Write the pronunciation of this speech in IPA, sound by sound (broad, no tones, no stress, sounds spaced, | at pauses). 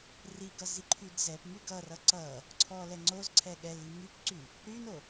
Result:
r i ɡ ʌ z i ǃʰ y d z ɛ p m y ɡ ʌ r ʌ ǀ ʌ | ǀʰ ɔ l ɛ ŋ͡ǀ o z ǀʰ ɛ ɠ ɛ l i m y p ǀ y | ɾ y n o